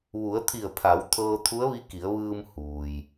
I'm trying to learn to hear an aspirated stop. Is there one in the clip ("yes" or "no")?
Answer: yes